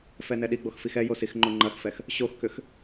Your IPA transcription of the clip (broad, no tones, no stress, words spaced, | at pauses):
fɛnɛɗiɡ͡box fixɛjo sixŋ͡ǃoŋ͡ǃɐxfɛx | ɕoxkʏx